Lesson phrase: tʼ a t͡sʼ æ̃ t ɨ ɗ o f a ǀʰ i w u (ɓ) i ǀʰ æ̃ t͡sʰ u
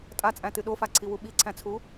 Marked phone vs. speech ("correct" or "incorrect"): correct